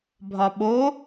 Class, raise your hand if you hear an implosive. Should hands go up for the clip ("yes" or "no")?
yes